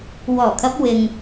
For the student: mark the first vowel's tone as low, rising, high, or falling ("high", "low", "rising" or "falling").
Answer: low